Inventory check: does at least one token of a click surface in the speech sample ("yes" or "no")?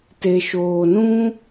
no